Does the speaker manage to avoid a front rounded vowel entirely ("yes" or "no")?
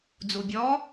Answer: yes